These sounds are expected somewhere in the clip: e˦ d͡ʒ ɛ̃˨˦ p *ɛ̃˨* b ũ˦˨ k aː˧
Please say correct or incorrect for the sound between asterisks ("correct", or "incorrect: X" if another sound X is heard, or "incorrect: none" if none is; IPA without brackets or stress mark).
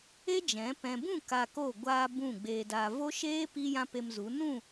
correct